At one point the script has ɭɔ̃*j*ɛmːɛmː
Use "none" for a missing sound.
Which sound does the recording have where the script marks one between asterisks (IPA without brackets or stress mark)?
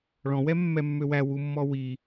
w